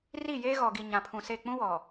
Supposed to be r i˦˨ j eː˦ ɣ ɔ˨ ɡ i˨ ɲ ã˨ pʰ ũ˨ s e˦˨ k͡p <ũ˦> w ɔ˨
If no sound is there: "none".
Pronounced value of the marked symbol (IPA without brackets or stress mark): ũ˦